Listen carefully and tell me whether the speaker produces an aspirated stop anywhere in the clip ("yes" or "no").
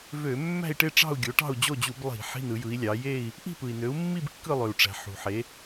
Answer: no